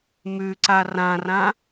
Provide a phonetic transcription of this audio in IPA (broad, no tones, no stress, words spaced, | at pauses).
mʉǀa rãrã